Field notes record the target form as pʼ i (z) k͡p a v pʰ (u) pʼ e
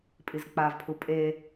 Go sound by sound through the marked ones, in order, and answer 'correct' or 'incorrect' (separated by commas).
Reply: correct, correct